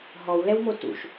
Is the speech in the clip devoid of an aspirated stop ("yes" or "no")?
yes